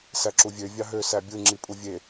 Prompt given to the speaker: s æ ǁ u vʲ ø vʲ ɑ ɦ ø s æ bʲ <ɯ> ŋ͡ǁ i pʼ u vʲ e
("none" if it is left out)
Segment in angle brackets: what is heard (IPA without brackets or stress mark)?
ɯ